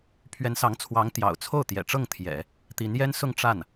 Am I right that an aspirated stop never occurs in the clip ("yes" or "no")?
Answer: no